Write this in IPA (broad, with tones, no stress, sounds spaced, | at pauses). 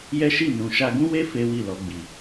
j ɛ˦ ʃ i˦˨ n ũ˨ ʃ a˧ ɡ ũ˦ w e˦ f e˦ w i˦˨ l ɔ˧ ɡ͡b i˨